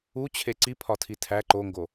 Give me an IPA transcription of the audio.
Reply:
u t͡ɕʰ e ǀ i pʰ ɒ tʰ i tʰ æ ǃ o ŋ ɡ o

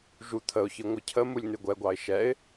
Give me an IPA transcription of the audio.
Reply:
ʒ u t̪ʰ ə ʊ̯ ç ɨ ŋʷ ɨ cʰ ə m u lʲ n ɨ ɡʷ ɛ ɡʷ ɑ ɪ̯ ʃ ɛ ɪ̯

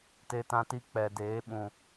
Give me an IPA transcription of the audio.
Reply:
t e˧ t ã˧ t i˧ k͡p ɛ˨ d eː˨˦ ɓ ũ˨

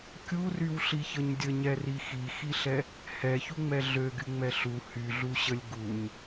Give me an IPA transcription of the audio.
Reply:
kʲ u r y w ɬ i ç ə ɲ dʲ ə ɲ ɛ r i x i x i ɬ ɛ | h ɛ ç u ŋ͡m ɛ ɮ ø ɡ y ŋ͡m ɛ ɬ u h y ɮ u ɕ ə lʲ ɡ u ɲ

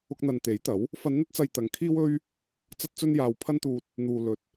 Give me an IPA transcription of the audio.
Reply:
ʊ˧ k̚ n̪ ɐ˨ n t̪ e˨˥ j t̪ ɐ˨˥ w | f ɐ˨˧ n n̪ ɐ˧ t̚ t͡s ɐ˨ j t̪ ɐ˨ ŋ kʰ iː˥ w ɵ˥ ɥ | t͡s ɐ˥ t̚ t͡s ɵ˥ n j aː˧ w pʰ ɐ˥ n t̪ uː˧ t̚ | n̪ uː˨ l ɵ˨ t̚

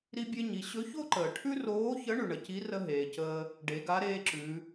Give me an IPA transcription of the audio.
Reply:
ɾ i˥ bʲ e˥ ɲ i˩˧ ɕ ɵ˧˥ ç o˥ ǃ əː˩ ʈʰ ʉ˥ r oː˧˥ ç ə˧˥ ɳ ʉ˩ ɳ ə˩ c i˧˥ r ə˥ ɦ eː˩ c əː˧ | ɖ e˩˧ ɡ a˧˥ ɾ eː˥ ǁ ʉ˩˧

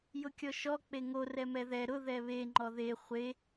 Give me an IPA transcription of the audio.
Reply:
j ʊ kʲ ɔ ʃ ɔ k͡p e ŋ o r ɛ m ɛ ð ɛ ɾ ʊ ð ɛ β e ŋ͡ǃ ɔ ð e χʷ e

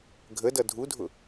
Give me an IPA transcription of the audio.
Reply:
ɡʱ ə d ʌ dʱ u dʱ ʊ

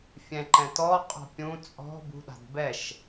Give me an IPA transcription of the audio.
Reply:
fʲ ɛ̃ ǃ ɛ̃ t ɔ qʼ ɔ̤ pʲ ũ t͡sʼ ɔ̤ b ṳ ɗ a̤ d b ɛ ʃ

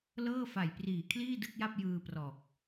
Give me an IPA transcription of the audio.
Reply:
l ɤː˥˩ f a˨˩ j p r iː˨˩ kʰ l iː˥˩ d ɯ˥˩ k̚ j a˥˩ p̚ j ɯː˧ p r ɔː˨˩ k̚

